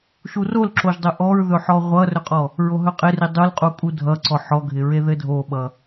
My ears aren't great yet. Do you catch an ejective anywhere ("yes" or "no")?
yes